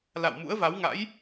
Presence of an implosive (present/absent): absent